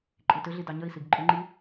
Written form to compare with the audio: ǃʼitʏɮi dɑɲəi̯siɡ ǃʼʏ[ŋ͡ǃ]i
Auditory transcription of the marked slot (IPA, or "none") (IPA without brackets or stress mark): ŋ͡ǃ